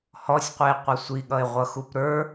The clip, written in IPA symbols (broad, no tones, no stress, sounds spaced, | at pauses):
h ɔ sʲ qʷ i e̯ qʷ ʌ sʷ i ɠ ʌ e̯ ʁʷ ʌ x u p ɾ ə˞